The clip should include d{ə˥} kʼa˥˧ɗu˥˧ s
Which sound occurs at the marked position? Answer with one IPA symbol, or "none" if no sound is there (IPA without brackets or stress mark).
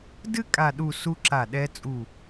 ɨ˥